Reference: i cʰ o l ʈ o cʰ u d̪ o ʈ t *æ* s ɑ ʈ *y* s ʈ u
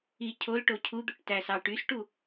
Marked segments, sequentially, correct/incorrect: correct, correct

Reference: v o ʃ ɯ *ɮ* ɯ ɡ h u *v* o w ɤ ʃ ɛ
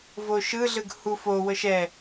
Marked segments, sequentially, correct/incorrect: correct, incorrect

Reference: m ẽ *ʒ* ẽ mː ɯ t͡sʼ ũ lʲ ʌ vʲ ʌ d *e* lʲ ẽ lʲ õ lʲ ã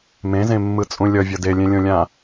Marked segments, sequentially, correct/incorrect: incorrect, correct

